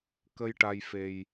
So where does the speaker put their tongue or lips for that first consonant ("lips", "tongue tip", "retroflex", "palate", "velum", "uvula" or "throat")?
velum